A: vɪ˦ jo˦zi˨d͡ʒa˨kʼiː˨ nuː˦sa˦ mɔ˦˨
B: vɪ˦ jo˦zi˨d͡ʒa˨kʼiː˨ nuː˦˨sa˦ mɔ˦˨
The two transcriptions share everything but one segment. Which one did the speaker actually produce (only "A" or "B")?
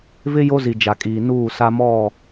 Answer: B